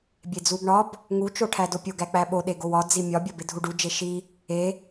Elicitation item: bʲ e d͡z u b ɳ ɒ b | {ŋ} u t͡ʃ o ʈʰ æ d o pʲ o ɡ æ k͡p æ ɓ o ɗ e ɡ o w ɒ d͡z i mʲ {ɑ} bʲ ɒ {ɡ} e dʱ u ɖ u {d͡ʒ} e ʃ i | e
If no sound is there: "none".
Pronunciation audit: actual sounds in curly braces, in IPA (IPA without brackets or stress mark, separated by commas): ŋ, ɒ, b, d͡ʒ